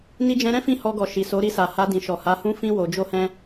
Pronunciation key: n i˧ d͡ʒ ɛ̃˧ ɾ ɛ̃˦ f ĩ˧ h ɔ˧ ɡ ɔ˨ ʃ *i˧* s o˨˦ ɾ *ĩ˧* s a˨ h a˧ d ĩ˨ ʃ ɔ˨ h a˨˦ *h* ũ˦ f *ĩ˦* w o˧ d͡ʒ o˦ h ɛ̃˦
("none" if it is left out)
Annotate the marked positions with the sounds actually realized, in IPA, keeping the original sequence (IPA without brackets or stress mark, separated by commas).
i˨, i˧, h, ĩ˦